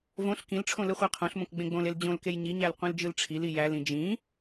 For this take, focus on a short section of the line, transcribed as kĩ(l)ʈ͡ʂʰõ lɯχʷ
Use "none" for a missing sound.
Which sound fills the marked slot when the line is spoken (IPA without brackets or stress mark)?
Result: l